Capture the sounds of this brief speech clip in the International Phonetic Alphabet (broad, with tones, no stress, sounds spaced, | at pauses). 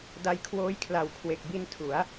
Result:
d a˧ j kʰ w oː˦˥ j kʰ l a˨˩ w kʰ w e˨˩ k̚ b i˧ n tʰ u˩˦ a̯